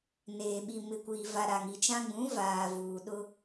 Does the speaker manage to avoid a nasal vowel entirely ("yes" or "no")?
no